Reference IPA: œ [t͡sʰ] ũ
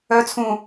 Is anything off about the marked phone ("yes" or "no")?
no